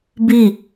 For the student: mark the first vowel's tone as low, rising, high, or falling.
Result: falling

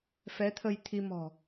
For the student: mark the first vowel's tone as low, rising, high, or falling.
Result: rising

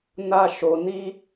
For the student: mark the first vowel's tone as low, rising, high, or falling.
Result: high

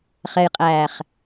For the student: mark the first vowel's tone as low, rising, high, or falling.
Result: low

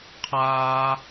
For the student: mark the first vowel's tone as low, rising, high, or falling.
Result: high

